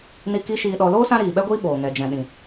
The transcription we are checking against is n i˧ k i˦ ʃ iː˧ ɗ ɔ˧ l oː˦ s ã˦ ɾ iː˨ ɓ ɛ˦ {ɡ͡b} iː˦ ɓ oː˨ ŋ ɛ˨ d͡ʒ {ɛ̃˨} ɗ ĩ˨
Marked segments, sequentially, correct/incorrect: incorrect, correct

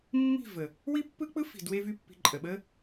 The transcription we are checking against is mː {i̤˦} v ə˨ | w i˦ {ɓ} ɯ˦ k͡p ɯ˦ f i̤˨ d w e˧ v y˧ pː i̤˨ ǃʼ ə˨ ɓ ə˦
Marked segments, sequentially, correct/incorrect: incorrect, incorrect

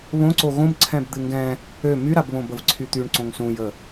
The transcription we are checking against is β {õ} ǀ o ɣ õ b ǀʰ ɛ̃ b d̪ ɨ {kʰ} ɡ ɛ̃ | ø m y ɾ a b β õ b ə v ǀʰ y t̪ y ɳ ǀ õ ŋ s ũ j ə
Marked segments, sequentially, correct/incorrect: correct, incorrect

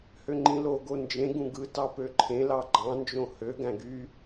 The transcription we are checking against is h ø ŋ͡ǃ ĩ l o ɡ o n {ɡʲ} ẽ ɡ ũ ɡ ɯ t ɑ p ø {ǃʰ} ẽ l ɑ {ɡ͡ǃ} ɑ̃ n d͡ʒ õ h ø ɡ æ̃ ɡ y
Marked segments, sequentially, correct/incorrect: incorrect, correct, correct

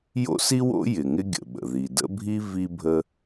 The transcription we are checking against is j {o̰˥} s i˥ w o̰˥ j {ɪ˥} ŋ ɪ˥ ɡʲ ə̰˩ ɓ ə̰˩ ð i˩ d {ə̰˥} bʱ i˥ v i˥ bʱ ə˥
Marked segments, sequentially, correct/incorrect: correct, incorrect, correct

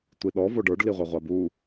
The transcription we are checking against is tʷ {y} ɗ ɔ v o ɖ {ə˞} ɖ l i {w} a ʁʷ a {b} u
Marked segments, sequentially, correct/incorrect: incorrect, correct, incorrect, correct

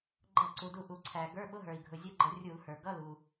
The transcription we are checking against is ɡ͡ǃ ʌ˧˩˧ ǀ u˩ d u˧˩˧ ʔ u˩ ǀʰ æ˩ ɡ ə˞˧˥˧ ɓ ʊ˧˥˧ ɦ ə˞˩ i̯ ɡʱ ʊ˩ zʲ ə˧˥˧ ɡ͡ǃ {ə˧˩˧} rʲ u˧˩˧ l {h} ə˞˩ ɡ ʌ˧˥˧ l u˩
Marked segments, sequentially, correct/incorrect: correct, correct

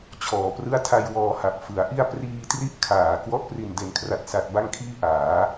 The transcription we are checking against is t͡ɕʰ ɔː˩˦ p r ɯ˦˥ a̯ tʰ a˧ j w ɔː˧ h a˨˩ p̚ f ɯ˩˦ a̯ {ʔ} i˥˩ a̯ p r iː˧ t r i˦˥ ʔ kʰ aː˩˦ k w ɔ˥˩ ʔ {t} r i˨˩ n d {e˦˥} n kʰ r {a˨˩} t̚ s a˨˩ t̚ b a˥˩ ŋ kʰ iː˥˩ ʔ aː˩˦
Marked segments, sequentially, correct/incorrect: correct, incorrect, incorrect, correct

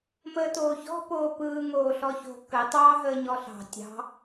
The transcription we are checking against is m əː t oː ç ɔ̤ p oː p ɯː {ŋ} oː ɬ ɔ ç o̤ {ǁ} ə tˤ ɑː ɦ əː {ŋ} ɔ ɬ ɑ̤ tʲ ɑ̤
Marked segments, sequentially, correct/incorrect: correct, incorrect, incorrect

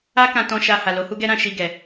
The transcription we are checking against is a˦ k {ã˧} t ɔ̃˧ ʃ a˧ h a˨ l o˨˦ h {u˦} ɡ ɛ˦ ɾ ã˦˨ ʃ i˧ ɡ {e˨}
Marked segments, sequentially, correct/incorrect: correct, correct, incorrect

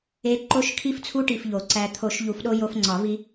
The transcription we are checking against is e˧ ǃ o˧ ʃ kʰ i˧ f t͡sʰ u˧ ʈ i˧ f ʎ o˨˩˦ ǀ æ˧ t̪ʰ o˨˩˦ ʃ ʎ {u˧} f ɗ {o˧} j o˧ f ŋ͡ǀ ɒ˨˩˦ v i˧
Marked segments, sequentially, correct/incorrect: incorrect, correct

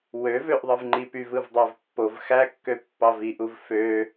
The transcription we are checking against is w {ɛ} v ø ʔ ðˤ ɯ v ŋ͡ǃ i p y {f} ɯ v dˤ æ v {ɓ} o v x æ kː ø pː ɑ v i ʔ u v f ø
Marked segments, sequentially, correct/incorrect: incorrect, incorrect, incorrect

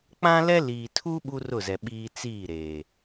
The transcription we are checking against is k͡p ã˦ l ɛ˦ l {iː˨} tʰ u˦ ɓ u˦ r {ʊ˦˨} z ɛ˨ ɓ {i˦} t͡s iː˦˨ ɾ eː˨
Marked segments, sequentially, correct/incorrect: correct, correct, incorrect

